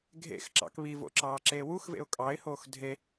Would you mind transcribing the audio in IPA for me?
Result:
ɡʱ ḛ x ǁ ɑ̰ k β i v o̰ ǁ ɑː ǁ eː w u x v ḛ ʊ̯ kʼ ɑ ɪ̯ h oː x dʱ e

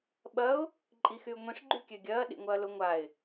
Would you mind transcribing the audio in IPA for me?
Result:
ɓ ɐ ʊ̯ | ǃʼ i x y ʊ̯ ŋʷ ĩ ʂ ɡ͡ǃ y kʲ ø ɡʲ ɐː ɗ ḭ ŋʷ ɐː l ʊ ŋʷ a ɪ̯

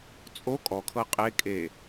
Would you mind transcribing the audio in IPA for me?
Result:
t͡sʼ o kʼ ɔ kʰ ɤ qʼ e kʼ e

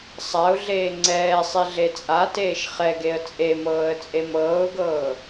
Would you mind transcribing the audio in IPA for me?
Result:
sˤ a ʊ̯ ɮ eː ŋ͡ǀ ɛː sˤ i ɮ e t͡sʼ a t eː ʃ χ ɛ ɡ e ə̯ t͡sʼ e m ɤː ə̯ t͡sʼ e m ɤː ʊ̯ ɡ ɤː

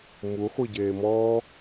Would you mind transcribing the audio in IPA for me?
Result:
m u χʷ i ɟ eː m ɔː

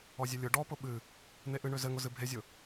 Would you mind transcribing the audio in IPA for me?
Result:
ɔ zʲ ɘ lʲ ʊ ɖ ɔ p ʊ ɓ ɨ | n̪ e ʔ ɨ ɳ ø z ɘ ŋ ʊ z ɨ bʱ e zʲ ʊ

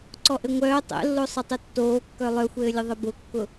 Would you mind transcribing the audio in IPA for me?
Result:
ǀ ɔ ʔ ɘ ŋʷ œː tˤ ɛ̰ lː o sˤ ɘ tˤ ɘ tː oː kː œ lˠ œ xʷ ɘː lʲ ə ðˤ ɘ b ʊ kː ʊ

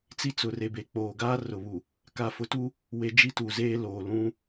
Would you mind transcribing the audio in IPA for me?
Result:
t͡s i˦ t͡s ʊ˨ r e˨ b e˨ k͡p oː˨ ɡ aː˦ r ʊ˨ β u˨ | k a˨ f ʊ˨˦ t u˦ | w e˦ d͡ʒ i˦ t u˨ z eː˦ l oː˨ l ũ˦

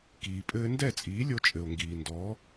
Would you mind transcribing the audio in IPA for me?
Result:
k iː˩ pʼ ɘː˥ n d ɛ˥˩ t͡sʼ iː˩˥ lʲ o˧ t͡ʃʼ ɘ˩ o̯ ŋ ɡ iː˩ n d ɔ˩˥

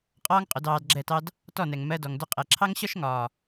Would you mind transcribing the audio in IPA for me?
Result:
qʼ ɒː˦ ŋ qʼ ʊ˨˦ d ɑː˧ d ɡ͡ǁ ɛ˦˨ t ɑ˦ d | t ɔ˦˨ n ɛ˨ ŋ m ɜ˧ d ɔ˨ ŋ d ʊ˧ qʼ ɛ˨ ǁʰ ɑ˦ ŋ ɕ ɒ˦ ʃ ŋ ɒː˨

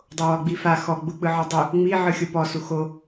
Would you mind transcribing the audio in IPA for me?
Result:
dˤ o w ɔ ɡ͡b i f a x ɔ ɡ͡b u k͡p ɯ ʕ ɔ dˤ u | ŋ͡m i ʕ ɯ xʲ o p ɔ s u x o

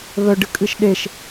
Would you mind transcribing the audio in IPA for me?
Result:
β œ ɖ ɨ kʼ ɨ ʃ ɗ e ʃ

